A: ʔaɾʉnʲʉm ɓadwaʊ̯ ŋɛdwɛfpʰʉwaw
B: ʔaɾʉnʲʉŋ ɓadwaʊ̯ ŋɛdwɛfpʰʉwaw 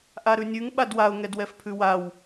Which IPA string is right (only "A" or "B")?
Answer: B